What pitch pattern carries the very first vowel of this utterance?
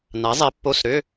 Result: rising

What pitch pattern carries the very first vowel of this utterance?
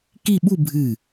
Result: falling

